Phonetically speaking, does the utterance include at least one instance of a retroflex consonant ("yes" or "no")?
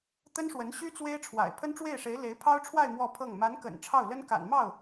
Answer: yes